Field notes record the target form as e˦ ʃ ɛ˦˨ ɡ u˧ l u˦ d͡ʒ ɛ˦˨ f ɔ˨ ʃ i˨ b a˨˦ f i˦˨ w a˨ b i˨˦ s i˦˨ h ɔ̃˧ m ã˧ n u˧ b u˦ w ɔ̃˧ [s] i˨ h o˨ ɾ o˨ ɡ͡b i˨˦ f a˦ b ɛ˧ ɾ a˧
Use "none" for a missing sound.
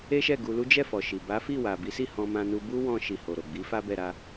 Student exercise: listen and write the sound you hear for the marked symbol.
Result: ʃ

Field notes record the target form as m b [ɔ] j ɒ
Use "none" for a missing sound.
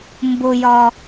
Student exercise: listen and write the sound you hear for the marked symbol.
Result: ʊ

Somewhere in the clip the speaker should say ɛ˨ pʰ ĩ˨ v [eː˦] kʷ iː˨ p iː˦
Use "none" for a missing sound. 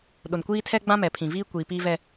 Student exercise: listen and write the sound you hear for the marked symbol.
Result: iː˦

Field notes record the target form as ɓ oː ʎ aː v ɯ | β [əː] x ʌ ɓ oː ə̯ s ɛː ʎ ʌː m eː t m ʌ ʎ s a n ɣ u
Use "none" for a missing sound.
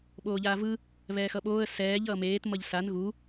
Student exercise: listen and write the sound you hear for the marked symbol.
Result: ɛː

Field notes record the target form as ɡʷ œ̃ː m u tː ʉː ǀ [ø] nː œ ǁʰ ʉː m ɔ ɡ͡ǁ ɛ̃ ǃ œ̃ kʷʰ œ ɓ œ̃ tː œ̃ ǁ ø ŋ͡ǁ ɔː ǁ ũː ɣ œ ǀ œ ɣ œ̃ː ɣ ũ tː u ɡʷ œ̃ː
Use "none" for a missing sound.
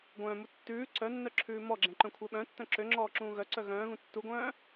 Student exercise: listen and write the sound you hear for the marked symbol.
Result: œ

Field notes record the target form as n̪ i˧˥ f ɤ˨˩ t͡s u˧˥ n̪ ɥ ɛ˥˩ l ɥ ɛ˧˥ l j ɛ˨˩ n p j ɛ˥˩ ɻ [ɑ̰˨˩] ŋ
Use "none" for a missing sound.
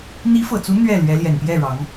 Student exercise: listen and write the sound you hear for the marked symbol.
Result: ɑ˧˥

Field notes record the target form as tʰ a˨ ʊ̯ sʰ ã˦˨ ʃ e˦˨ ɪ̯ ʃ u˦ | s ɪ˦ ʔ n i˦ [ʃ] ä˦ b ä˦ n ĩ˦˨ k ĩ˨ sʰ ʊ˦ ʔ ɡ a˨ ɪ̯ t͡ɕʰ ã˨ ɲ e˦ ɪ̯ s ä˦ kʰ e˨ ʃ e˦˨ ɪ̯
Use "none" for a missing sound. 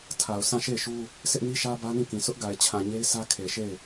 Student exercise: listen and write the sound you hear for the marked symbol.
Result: ʃ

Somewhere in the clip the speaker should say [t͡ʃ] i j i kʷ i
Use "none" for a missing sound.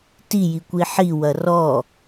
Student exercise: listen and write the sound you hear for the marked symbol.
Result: t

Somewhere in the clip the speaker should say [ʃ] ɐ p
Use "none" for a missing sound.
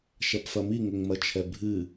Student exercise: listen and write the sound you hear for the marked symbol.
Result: ʃ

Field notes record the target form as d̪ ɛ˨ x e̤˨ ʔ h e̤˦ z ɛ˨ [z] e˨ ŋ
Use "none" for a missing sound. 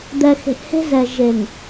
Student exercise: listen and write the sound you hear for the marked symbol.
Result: ʒ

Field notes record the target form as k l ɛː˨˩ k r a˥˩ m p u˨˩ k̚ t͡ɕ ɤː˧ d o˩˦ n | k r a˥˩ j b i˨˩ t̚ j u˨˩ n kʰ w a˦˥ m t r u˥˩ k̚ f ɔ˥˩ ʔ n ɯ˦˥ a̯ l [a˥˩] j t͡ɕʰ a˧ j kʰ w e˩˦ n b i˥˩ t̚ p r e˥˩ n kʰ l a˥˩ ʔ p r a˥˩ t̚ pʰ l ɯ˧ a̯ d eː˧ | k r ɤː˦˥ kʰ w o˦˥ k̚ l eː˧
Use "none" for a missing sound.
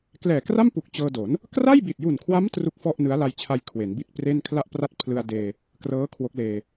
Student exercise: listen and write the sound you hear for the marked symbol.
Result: a˧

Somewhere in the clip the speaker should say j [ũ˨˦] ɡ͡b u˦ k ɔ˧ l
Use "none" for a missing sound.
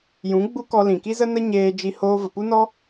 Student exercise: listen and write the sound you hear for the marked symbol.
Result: ũ˨˦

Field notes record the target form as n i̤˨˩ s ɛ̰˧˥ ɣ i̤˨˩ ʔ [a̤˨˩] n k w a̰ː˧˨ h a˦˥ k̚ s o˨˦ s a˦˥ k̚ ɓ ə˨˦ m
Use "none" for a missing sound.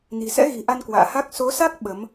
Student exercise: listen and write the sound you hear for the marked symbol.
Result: a˧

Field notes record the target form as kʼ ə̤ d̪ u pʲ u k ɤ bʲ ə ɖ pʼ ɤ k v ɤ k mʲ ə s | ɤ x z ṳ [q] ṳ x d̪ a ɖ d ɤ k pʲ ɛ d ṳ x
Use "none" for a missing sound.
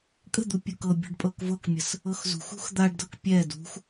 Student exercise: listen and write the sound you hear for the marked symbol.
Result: x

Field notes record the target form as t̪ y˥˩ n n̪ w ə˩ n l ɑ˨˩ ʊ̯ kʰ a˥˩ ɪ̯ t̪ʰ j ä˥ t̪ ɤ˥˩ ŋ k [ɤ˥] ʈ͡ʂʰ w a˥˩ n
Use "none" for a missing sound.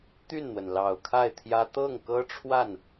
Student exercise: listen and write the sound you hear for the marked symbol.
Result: ɤ˥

